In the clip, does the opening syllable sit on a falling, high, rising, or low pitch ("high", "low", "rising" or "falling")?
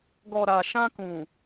low